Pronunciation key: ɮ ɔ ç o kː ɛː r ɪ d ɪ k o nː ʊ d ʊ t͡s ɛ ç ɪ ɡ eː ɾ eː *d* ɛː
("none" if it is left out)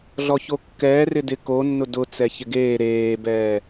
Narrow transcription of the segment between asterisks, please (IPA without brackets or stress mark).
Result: b